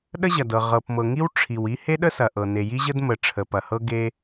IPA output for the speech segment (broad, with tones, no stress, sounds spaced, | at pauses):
ɗ ə˥ ʑ ɐ˩ d ɤ˩ ʁ ɤ˩ p m ɤ˩ ŋ i˥ w ʈ͡ʂʰ i˩ w i˥ h e˥ ɗ ə˥ s ɐ˩ ʔ ɤ˩ n e˩ j i˥ ʑ ə˥ d m ə˩ ʈ͡ʂʰ ə˩ p ɐ˩ h ɤ˥ ɡ e˥